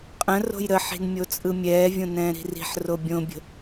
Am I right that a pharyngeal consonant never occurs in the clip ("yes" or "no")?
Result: no